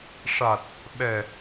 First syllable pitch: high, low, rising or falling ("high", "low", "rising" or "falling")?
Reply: low